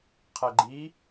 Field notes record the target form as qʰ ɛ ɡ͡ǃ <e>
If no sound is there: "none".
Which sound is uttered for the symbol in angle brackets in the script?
i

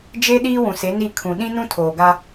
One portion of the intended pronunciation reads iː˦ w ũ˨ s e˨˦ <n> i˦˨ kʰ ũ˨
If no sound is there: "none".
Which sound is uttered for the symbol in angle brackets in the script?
n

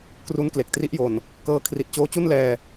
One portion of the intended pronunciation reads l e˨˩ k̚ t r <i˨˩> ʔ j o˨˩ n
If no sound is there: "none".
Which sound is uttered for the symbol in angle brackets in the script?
i˦˥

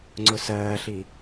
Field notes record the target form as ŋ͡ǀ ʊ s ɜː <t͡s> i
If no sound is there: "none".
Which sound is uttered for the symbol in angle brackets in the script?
ɬ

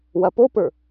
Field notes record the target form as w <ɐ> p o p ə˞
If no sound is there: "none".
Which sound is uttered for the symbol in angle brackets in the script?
ɐ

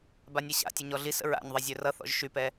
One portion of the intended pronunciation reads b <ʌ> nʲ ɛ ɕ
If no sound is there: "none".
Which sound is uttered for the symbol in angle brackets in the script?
a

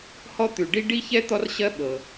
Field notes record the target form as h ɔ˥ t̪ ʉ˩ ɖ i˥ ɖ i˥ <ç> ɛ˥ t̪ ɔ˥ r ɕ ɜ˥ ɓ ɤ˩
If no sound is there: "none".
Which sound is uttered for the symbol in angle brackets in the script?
ç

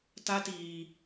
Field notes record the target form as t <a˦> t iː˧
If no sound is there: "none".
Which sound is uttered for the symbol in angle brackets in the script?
a˦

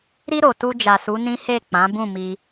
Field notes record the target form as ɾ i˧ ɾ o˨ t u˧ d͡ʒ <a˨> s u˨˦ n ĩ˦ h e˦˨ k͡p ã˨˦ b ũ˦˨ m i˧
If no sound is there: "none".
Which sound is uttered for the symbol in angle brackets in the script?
a˨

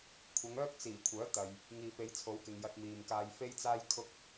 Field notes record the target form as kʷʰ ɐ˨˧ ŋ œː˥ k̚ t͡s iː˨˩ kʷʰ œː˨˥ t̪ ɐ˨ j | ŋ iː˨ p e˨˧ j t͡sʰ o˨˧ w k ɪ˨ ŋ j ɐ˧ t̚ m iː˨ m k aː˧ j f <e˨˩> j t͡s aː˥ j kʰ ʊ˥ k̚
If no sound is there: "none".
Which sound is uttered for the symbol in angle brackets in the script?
e˥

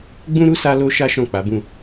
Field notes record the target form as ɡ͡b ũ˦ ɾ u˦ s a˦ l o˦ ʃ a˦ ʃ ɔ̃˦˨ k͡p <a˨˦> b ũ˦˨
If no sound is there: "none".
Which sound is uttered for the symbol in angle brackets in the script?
a˨˦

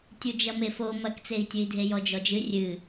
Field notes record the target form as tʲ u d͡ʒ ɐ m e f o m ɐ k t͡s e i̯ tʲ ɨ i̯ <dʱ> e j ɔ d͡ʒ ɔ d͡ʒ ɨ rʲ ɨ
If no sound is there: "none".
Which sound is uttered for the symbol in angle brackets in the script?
dʱ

